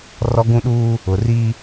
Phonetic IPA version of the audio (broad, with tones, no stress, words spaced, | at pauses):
rɔ˦ɡũ˦ɗuː˦ | ʊ˨ri˦